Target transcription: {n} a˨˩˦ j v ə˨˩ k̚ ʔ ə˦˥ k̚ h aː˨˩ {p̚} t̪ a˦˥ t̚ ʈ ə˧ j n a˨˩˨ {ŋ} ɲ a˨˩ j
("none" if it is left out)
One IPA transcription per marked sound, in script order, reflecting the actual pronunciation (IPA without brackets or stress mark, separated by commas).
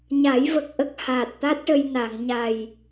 ɲ, t̚, ŋ